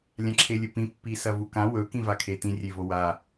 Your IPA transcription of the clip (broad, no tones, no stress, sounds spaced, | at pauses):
lʲ ã ǁʰ e lʲ ɵ p ĩ pː i s ɐ v u k ã w ɵ k ĩ v a kʰ e t ĩ rʲ e v o w a